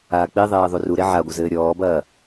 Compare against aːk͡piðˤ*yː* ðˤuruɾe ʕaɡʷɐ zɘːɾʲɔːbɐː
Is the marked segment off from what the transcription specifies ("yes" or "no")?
yes